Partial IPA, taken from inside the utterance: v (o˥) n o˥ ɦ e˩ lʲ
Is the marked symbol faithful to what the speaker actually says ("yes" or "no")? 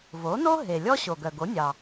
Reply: no